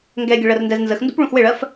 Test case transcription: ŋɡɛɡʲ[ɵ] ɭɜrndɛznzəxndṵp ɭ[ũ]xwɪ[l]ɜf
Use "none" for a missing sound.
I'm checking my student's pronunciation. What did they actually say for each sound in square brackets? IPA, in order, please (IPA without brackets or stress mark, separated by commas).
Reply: ə, ũ, ɭ